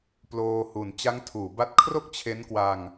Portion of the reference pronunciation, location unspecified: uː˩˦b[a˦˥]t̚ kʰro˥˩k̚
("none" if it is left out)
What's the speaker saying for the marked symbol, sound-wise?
a˦˥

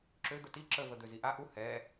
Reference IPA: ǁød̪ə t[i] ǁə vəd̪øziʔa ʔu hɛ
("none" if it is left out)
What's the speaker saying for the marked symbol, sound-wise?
i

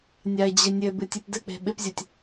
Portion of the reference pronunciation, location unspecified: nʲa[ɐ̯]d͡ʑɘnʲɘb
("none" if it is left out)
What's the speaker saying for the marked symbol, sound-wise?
e̯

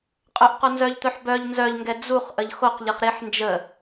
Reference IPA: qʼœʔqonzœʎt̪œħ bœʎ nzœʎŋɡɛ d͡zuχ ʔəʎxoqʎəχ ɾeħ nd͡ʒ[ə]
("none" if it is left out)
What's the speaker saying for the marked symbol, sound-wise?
ə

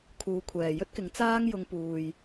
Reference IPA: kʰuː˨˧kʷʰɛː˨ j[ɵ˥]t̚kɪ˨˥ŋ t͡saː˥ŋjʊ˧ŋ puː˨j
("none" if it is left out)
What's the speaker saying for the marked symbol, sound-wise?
ɵ˥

